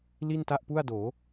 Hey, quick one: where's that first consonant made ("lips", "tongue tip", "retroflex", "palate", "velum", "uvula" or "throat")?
tongue tip